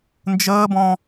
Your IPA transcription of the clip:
n d͡ʒ əː b ɔ̃

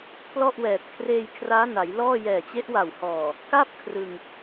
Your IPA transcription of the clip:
p l ɔ˥˩ ʔ w ɛː˨˩ t̚ kʰ r eː˧ j kʰ r aː˦˥ n a˩˦ j l ɔː˥˩ j ɛː˨˩ t͡ɕ e˦˥ ʔ w a˨˩ w h ɔː˨˩ | k a˥˩ p̚ kʰ r ɯ˧ ŋ

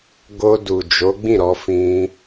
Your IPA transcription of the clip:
ɡ o˧ d u˨ d͡ʒ o˨˦ ɡ͡b ĩ˦˨ ɾ ɔ˧ f ĩ˧

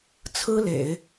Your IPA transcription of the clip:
t͡sʰ ɹ̩˥ l ḛ˨˩˦ ɪ̯

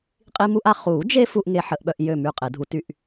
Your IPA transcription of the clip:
qʼ i˦ m u˦ ʔ a˦ χ u˨˩˦ d͡ʒ e˦ f u˦ ʔ ŋ e˦ ħ ə˨˩˦ ʔ ɓ œ˦ ʔ j ø˥˩ m y˥˩ qʼ e˨˩˦ dʱ u˨˩˦ t y˦ ʔ

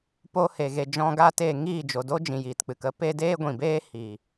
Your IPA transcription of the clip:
p o˧ h e˨ ɣ e˨ d͡ʒ ɔ̃˧ ɡ aː˧ t eː˨ ŋ iː˦˨ d͡ʒ o˨ d o˦ d͡ʒ ĩ˨ j iː˨ t k͡p ɨ˨ k ə˧ p e˧ d eː˦ ɡʷ ĩ˨ b eː˦ h i˨

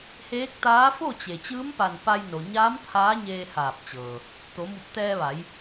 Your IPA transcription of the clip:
h eː˧˥ k̚ t̪ aː˧˥ f o˥˨ t͡ɕ e˩ t͡ɕ ɯː˧˥ m p a˧˩ n p a˧ j n o˩ ɲ aː˧˥ m t̪ʰ aː˧˥ ɲ eː˧ h aː˧˩ p̚ t͡ɕ ɤː˩ | t̪ o˩˧ m u˧˩ p̚ t̪ ɛː˧ ʋ a˩˧ j

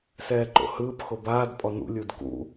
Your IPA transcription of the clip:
s ɛː ǃ o̰ h ɯː p x o b aː d pʼ ɔ n ṵ lʲ u d k ṵ

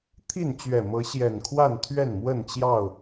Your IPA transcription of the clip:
t̪ʰ i˥˨ n t͡ɕ ɥ ɛ˨˩ m ɤ˨˦ ɕ j ɛ˨˩ n kʰ w a˥˨ n t̪ʰ ɥ ɛ˥˨ n m w ə˥˨ n t͡ɕ j ɑ˥˨ ʊ̯

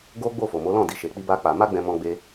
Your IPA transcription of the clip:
ɡ o˦ ɡ͡b o˦˨ f o˨ m o˨˦ l ɔ̃˦˨ d i˧ ʃ e˧ k͡p i˦ b a˦ k͡p a˧ m a˦ ɡ͡b ɛ̃˧ m ɔ̃˦ ɡ͡b e˦

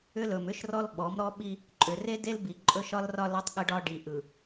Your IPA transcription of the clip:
ʏ˦ l ɵ˨ m ʏ˦ ʃ r ɔ˦ l ɓ ɔ˨˦ m ɾ ɔ˦ ɓ i˦ | ǃʼ ʏ˨ r e˦ d e˦ l b i˨ ǃʼ ɵ˦ ʃ ɒ˦ l r ɒ˦ l ɔ˦ tˤ ɠ ə˦ ɖ ɒ˦ ɖ i˨ ʔ ɯ˨

